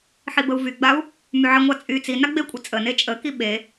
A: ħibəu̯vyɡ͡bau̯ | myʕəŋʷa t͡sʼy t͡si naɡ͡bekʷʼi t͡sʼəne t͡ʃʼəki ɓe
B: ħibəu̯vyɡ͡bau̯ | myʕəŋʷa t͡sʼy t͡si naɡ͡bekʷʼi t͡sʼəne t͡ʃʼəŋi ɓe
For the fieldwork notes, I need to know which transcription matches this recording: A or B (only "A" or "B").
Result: A